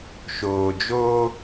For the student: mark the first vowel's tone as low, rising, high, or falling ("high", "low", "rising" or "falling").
low